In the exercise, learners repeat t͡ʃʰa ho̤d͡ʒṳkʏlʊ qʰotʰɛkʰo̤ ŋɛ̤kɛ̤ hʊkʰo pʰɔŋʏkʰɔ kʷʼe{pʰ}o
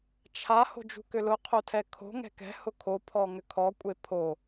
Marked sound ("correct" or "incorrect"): correct